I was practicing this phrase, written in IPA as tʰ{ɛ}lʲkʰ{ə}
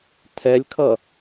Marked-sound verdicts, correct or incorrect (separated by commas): correct, incorrect